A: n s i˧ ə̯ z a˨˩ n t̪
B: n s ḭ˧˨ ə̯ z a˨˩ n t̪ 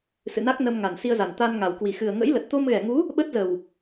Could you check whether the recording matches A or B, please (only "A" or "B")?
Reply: A